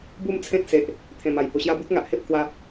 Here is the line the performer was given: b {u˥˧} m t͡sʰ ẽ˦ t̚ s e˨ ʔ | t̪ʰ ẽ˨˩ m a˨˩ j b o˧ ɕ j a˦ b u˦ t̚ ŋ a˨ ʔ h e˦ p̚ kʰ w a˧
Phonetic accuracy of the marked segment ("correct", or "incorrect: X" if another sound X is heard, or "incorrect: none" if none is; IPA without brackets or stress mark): correct